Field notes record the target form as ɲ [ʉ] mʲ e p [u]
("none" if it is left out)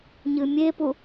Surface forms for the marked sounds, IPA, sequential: ɨ, u

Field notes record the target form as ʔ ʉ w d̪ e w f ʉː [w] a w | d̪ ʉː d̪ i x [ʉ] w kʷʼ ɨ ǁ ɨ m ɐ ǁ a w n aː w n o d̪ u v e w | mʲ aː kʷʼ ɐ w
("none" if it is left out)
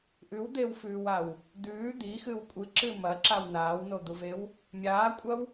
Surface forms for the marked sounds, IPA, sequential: w, ɨ

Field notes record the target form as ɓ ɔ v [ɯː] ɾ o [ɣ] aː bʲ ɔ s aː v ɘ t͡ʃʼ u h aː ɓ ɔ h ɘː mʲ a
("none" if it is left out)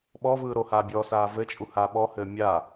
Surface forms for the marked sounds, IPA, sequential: ɯː, h

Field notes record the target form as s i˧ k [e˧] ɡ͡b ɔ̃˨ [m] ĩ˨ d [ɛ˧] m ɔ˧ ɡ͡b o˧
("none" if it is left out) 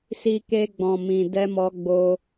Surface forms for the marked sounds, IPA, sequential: e˧, m, ɛ˧

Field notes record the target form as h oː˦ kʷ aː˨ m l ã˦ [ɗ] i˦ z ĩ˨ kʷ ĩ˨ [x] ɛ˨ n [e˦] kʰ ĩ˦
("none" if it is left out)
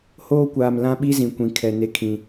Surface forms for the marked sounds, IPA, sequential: ɓ, kʰ, e˦

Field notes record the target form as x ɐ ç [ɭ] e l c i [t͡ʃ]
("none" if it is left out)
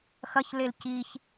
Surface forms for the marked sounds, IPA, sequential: l, ç

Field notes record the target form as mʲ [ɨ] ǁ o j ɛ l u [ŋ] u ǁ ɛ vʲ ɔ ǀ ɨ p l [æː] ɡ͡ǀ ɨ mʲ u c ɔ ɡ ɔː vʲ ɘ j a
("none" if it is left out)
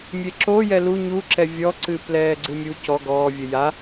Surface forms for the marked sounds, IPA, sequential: e, ɲ, ɛː

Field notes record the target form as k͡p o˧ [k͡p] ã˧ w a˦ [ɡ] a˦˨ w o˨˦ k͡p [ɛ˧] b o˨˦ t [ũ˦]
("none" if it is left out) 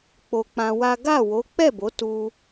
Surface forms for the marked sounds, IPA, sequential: k͡p, ɡ, ɛ˦˨, u˦

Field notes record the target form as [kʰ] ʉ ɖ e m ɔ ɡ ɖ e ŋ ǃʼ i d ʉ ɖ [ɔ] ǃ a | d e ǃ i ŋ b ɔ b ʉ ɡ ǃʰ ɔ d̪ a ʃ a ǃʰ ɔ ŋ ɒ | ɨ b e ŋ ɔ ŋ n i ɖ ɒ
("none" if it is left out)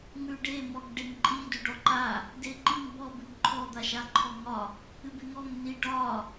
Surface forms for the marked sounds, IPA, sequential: ŋ, ɔ

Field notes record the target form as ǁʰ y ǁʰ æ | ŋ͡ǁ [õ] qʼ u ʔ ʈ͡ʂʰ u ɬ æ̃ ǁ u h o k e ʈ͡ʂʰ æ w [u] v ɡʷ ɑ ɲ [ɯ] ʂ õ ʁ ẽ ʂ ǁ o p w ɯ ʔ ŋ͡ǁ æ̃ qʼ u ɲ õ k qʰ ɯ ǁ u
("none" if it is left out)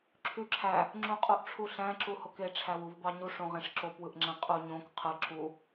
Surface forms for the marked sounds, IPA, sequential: ũ, u, u

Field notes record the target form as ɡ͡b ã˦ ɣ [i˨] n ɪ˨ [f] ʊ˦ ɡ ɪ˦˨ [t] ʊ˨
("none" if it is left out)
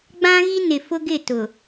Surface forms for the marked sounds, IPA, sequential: i˦, f, t

